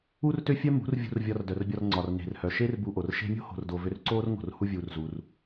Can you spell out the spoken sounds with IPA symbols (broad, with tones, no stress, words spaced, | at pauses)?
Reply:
u˦rtø˦fʲœ˦ mṳ˨˦rvʲṳ˧r vʲɒ˧rdœ˨rbʲɒ˧rŋ͡ǀɒ˨r ne̤˨rhœ˨ʃe˦r bu˧ʔo˨r ʃe̤˧mʲo̤˦ho̤˨rdo˨ vø˧rǀoː˦rŋo̤˨r hu˦vʲuː˧rzu˧r